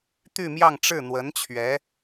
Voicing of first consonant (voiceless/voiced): voiceless